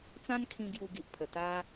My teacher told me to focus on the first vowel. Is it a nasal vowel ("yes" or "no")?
yes